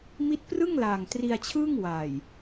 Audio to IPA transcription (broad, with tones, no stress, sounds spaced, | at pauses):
m i˦˥ t̚ p r ɯ˥˩ ŋ l aː˨˩ ŋ t r i˧ a̯ t͡ɕʰ ɯː˥˩ ŋ w a˨˩ j